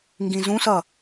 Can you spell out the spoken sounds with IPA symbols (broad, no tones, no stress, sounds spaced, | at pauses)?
ŋ ɡ ĩ z ũ s ʌ